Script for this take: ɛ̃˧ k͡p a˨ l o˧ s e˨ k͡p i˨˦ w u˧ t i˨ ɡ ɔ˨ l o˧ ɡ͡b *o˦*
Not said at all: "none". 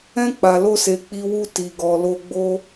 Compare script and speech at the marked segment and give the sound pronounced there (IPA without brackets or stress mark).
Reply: o˦